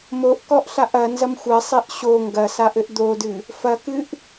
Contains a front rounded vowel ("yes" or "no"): no